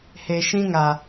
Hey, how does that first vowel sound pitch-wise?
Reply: low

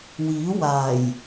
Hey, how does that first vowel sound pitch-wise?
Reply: rising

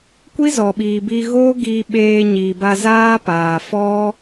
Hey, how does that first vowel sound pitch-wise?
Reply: high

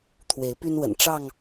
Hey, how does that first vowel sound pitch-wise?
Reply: rising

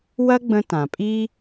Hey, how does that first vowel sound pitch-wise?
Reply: high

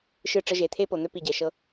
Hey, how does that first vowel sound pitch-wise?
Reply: falling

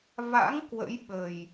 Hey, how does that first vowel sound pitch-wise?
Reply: rising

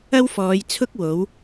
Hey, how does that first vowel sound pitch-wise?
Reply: high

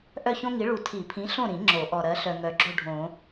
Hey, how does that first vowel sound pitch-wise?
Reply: falling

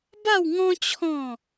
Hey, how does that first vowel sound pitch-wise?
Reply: falling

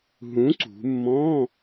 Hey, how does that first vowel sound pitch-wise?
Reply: rising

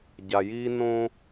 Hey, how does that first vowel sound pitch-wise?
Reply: low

